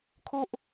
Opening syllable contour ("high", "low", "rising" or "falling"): high